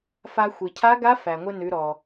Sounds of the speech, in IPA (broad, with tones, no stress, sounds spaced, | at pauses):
f a˧ xʷ i˩ cʰ a˧˥ ɡ a˧˥ f æ˩ ŋʷ ɘ˧ n ʉ˩˧ ɾ ɔ˩